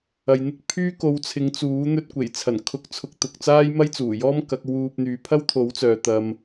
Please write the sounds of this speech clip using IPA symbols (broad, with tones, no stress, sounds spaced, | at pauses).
ɐ˨ j n̪ ɪ˥ k̚ pʰ yː˥ k o˨˧ w t͡sʰ ɪ˨˧ ŋ t͡s uː˨˥ n̪ ɵ˧ t̚ kʷ e˨˩ j t͡sʰ ɐ˨˩ n kʰ ʊ˨ k̚ t͡sʰ ʊ˨ k̚ t̪ ʊ˨ k̚ t͡s aː˥ j m ɐ˥ j t͡s uː˨˩ j ɔː˥ m k ɐ˨˥ k̚ w uː˧ p̚ n̪ yː˨˧ pʰ ɐ˥ w t̪ʰ o˨˥ w t͡s œː˨ t̪ ɐ˧ m